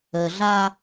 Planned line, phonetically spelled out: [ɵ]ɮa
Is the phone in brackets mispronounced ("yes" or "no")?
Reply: yes